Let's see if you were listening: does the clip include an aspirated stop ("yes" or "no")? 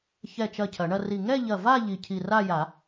yes